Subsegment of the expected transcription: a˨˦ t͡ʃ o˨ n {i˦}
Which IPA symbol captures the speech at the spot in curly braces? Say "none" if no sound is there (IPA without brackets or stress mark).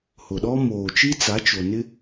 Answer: ɪ˦